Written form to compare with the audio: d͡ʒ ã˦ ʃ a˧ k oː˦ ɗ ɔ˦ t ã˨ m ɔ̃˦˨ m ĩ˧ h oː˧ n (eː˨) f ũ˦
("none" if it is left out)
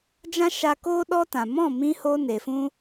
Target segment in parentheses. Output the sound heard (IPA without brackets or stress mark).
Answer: e˨